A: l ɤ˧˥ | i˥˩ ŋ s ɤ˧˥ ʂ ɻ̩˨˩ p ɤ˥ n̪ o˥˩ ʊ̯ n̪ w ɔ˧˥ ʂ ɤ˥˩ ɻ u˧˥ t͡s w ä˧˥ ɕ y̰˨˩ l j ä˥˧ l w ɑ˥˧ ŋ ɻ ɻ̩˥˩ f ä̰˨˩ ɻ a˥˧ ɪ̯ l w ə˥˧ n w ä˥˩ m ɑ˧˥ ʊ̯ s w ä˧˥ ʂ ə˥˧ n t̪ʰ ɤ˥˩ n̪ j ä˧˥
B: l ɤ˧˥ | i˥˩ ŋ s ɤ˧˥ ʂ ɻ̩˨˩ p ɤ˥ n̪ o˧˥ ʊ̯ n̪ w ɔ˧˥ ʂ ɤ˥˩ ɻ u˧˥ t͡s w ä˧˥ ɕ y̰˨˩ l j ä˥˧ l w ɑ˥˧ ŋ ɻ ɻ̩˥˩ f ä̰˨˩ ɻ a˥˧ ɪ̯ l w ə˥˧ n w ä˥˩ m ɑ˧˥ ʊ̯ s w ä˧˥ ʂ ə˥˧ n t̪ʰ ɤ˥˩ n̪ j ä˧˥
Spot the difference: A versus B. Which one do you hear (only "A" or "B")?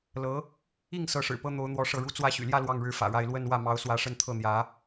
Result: B